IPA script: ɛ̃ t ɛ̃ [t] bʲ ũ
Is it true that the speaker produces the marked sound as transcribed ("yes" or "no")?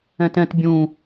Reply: yes